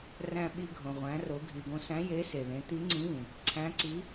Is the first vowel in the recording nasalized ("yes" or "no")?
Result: yes